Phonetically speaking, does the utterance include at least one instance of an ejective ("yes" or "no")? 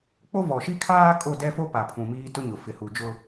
yes